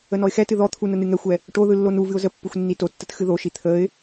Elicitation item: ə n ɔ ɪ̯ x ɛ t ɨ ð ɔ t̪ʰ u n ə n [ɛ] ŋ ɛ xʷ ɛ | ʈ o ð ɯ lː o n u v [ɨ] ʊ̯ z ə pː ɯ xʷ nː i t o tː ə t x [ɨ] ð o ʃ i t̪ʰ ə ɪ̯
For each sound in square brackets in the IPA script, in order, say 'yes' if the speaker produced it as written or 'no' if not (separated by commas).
no, yes, yes